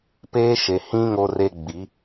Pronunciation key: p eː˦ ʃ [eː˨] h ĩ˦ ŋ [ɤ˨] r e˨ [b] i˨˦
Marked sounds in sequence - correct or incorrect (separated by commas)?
incorrect, incorrect, incorrect